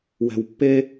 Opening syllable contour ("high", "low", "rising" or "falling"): low